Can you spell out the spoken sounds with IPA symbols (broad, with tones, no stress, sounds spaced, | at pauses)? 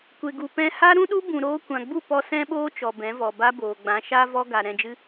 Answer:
kʷ e˨ ɡ u˨ p ɛ̃˧ h a˦ ɾ ũ˦ ɗ u˦ b ũ˨ ɾ oː˧ kʷ ã˨ ɡ͡b u˦˨ p ɔ˧ s ɛ̃˦ ɓ oː˦ t͡ʃ ɔ˨ b ɛ̃˨˦ v ɔ˨ b a˦ b oː˨ ɡ͡b ã˨˦ ʃ a˦ v ɔ˦ ɡ a˨ ɾ ɛ̃˧ d͡ʒ ɨ˦